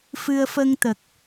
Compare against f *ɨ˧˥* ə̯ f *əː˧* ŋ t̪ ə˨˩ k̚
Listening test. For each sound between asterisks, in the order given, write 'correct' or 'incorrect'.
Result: incorrect, incorrect

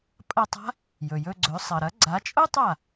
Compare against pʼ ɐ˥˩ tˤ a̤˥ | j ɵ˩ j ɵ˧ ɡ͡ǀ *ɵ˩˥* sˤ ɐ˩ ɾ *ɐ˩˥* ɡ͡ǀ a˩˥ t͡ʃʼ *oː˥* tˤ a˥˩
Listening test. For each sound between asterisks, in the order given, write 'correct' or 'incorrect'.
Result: correct, correct, incorrect

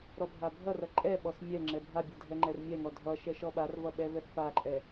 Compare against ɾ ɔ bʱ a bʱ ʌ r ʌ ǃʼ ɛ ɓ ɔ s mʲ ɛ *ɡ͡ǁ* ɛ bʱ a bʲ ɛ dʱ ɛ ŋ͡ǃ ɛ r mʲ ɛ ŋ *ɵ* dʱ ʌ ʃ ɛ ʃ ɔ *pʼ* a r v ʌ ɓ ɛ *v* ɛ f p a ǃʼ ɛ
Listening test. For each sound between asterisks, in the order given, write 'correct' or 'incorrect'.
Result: incorrect, incorrect, incorrect, correct

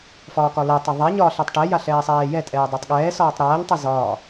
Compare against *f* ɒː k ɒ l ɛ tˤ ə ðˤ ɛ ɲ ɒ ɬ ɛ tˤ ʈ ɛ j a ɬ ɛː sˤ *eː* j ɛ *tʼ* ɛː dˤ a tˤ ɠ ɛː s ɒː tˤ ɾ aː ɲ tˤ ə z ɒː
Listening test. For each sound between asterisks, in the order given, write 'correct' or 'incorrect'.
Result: correct, incorrect, correct

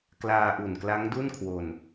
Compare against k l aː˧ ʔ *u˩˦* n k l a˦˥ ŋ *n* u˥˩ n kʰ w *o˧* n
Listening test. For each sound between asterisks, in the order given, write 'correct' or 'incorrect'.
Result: incorrect, incorrect, correct

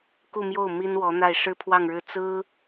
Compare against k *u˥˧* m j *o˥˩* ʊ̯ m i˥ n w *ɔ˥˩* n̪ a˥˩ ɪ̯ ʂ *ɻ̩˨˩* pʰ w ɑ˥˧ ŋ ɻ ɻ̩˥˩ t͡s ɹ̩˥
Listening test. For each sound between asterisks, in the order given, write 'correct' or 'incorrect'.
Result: correct, correct, incorrect, incorrect

